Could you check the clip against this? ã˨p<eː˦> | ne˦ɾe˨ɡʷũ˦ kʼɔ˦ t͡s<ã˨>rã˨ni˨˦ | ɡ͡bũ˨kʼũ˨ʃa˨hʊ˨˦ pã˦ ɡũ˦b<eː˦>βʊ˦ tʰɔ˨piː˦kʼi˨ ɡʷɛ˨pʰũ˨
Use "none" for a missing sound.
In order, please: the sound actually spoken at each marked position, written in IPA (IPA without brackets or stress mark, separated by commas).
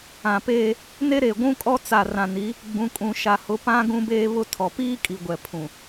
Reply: eː˦, a˨, eː˦